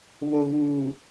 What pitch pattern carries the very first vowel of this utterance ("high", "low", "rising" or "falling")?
low